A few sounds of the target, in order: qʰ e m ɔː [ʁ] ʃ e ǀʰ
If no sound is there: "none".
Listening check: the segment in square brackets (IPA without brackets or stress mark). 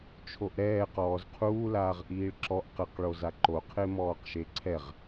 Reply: q